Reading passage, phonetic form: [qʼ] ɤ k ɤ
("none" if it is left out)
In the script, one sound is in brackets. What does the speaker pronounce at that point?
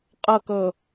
qʼ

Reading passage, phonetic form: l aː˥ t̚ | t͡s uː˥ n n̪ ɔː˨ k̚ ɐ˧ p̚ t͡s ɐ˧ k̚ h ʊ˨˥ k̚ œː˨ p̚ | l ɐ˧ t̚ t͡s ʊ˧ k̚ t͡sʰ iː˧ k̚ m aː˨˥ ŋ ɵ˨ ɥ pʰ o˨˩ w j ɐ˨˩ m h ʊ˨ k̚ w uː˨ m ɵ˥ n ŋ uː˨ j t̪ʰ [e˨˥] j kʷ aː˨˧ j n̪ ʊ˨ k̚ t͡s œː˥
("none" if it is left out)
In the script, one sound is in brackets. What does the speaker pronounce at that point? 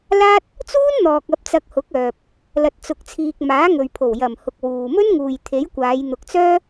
e˨˥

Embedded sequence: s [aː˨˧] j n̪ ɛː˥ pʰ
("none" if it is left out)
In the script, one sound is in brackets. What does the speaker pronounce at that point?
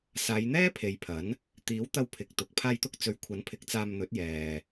aː˨˧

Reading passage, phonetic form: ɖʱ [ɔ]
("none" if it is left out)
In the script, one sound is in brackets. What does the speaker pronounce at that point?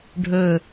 ɵ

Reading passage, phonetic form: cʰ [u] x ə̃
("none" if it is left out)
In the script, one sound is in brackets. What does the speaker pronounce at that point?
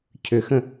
ʏ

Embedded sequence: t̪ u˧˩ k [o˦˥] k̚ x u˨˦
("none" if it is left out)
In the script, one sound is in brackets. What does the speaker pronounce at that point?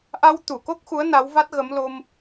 o˦˥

